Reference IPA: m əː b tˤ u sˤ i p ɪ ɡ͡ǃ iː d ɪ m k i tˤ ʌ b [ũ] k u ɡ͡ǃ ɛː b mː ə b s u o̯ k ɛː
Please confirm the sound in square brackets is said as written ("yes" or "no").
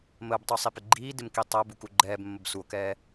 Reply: no